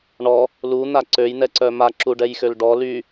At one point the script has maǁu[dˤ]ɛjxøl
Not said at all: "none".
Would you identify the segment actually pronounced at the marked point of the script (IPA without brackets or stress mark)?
ɖ